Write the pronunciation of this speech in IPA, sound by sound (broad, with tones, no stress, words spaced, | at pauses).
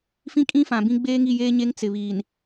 fĩ˦kʼĩ˦fã˨bĩ˦ ɡ͡beː˦ŋi˦˨jeː˦ɲe˦ŋ t͡sɪ˨βiː˨n